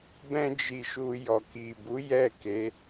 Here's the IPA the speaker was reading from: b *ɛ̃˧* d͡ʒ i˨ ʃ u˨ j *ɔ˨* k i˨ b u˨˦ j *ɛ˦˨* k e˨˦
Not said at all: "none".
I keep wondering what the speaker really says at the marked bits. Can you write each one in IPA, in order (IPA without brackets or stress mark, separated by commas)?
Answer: ɛ̃˧, ɔ˨, ɛ˦˨